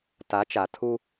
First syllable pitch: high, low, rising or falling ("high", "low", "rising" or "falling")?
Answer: rising